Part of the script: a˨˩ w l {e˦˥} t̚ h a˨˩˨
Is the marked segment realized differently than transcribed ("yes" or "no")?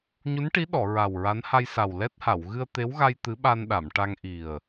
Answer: yes